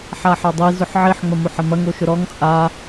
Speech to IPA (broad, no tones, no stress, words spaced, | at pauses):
ħaħɐdˤi zʊħʕiħ ŋ͡mɐmoħɐmɐŋ oʃʊɾɔŋ t͡sʼa